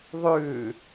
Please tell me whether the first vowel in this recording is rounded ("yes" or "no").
yes